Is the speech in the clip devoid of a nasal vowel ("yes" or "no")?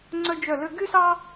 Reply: yes